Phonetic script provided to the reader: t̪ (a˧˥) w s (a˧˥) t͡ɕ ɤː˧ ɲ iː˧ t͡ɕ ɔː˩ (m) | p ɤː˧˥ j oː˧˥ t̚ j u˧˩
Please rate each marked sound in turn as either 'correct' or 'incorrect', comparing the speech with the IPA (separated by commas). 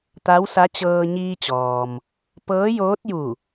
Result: correct, correct, correct